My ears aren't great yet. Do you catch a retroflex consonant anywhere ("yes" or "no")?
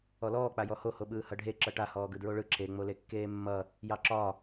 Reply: yes